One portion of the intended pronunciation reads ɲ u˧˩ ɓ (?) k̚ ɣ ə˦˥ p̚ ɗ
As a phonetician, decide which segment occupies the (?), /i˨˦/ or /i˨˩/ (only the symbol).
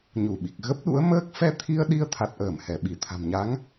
i˨˩